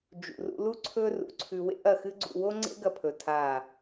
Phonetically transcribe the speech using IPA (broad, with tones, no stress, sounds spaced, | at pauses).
d͡ʒ ṵ˨ r ṵ˧ l u˦ ǀʰ ɵ˦ r ṵ˨ ǀʰ ʉ˧ w ḛ˦ ʔ ɐ˦˨ x ɨ˦ ɡ͡ǀ ṵ˧ w o˦ ŋ͡ǀ ḛ˦ ɡ ɐ˧ pʰ ɵ˨ tʰ a˦˨